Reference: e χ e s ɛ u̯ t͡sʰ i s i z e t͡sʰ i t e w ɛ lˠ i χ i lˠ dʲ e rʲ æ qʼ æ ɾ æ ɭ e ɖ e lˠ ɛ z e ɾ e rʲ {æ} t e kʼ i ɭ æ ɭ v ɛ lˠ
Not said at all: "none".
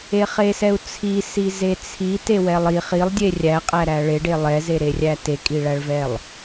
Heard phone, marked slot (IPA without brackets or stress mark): æ